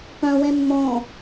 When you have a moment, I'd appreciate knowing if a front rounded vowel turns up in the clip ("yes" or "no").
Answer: yes